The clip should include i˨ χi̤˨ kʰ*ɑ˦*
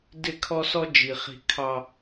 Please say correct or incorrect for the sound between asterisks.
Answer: correct